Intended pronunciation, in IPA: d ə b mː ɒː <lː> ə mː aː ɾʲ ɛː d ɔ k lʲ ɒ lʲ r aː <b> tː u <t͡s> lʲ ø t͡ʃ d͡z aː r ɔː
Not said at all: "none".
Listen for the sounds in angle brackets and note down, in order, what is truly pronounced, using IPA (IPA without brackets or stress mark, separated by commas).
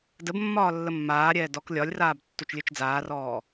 lː, b, t͡ʃ